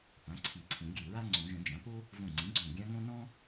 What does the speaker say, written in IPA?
p ã˩˥ ǀʰ i˨˩˦ ǀʰ ĩ˨˩˦ ɡʲ ɨ˧˩ ɹ a˥ ŋ͡ǀ õ˨˩˦ ʒ ə̃˨˩˦ d͡ʒ ã˩˥ p o˥ | v õ˧˩ ŋ͡ǀ ĩ˩˥ ɡ͡ǀ õ˧˩ ɡʲ ã˥ ŋ õ˥ n ɔ̃˥

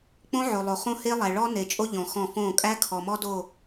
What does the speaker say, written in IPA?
k͡p õ˦ ʕ o˨ lˠ o˨ χ õ˦ h e˦ lˠ æ˨ ɭ ɔ˦ n e˨ t͡ʃʼ o˦ ʎ ɔ̃˨ x ɔ̃˦˨ f õ˦˨ kʼ æ˦ kʰ ɔ˨ m ɔ˦ d o˦˨

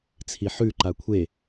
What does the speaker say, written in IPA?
t͡sʰ i ħ ʉ ǃ a kʷʰ e

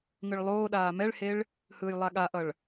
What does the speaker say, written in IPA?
ŋ ɯ ɭ lˠ oː ɗ aː m ɛ ɭ h e ɭ | h ɯː j lˠ a ɠ a ʔ ʌ ɭ

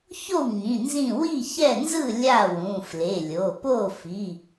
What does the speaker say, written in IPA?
ç o˥˩ w ŋ ĩ˩˧˩ n z ĩ˥˩ w i˥˩ ç ɛ˥˩ n z ɯ˥˩ lʲ a˥˩ w ũ˩˧˩ f l e˩˧˩ lʲ o˩˧˩ p o˥˩ f i˩˧˩

